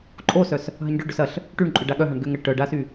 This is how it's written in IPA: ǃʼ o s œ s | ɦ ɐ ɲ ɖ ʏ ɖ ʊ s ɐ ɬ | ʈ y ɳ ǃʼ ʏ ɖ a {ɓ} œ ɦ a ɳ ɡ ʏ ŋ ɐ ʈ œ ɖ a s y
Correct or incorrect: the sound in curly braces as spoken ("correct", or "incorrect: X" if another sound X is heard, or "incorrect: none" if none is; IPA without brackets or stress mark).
incorrect: ɠ